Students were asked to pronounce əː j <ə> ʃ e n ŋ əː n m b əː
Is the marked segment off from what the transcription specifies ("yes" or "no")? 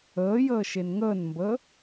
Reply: yes